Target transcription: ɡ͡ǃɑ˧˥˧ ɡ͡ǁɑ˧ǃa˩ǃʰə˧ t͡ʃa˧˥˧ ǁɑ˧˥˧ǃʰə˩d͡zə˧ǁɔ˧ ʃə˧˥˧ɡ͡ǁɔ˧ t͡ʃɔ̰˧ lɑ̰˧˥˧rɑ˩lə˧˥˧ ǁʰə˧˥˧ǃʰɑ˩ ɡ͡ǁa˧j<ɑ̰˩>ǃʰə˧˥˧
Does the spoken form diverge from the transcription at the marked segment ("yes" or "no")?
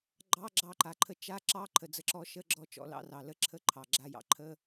no